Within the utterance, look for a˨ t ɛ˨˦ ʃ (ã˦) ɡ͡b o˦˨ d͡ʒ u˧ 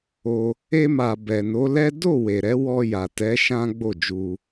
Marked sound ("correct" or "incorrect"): correct